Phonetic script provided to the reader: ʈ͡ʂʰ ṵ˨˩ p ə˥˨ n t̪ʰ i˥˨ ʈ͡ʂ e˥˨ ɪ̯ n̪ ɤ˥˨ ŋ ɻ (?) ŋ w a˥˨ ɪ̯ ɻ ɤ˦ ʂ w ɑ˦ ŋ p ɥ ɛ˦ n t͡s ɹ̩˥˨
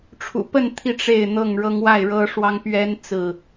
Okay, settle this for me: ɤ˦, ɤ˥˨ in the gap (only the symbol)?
ɤ˦